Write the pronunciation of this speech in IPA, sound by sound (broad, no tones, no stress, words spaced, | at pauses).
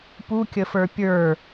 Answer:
pukʲəfə˞ pʲə˞